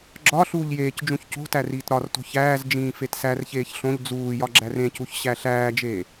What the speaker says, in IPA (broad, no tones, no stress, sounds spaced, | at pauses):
ɡ͡ǁ ɒ ɬ uː ʎ j eː c d͡ʒ ũ ç c o̤ t æ r iː t ɾ ɒ r t o̤ ç æː z d͡ʒ ĩː f e t s æ r ç eː ç ɬ õ ʎ d͡z uː j ɒ ɡ͡ǁ æ r ẽ c u ç ɕ æ ɬ æː d͡ʒ eː